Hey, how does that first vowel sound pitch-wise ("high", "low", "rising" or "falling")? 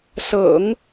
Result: low